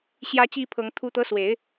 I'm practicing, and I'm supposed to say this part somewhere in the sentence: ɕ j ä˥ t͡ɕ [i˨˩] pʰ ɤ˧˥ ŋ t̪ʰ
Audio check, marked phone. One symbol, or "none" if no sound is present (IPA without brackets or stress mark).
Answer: i˥